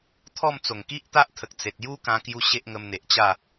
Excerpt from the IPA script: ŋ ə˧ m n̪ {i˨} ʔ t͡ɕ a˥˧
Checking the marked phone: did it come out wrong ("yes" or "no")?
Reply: yes